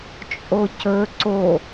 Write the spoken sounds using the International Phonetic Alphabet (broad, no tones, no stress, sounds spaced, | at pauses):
t͡ʃʼ o c ɵ ǀ o